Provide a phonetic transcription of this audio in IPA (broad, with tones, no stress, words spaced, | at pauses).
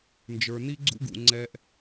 nd͡ʒə˞˨ni˦ɡ͡ǀṵ˦ɡṵ˨ ŋ͡ǀɛ˦ʔ